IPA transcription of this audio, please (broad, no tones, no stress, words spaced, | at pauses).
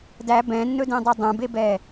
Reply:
dæ bɛ̃nːɵdẽdˤɛ dˤə̃bebɛ